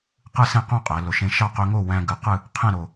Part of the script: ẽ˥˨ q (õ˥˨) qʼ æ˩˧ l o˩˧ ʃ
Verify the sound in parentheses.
correct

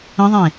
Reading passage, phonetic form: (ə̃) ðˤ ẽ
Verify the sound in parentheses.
correct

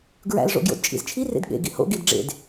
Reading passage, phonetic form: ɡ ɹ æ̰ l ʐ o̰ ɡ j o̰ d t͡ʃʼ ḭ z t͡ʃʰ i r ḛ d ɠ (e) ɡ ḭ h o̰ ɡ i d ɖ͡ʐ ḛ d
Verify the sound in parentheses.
incorrect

